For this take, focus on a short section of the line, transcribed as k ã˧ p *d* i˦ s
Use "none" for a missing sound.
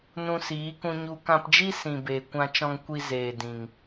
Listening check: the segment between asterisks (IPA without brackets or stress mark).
d͡ʒ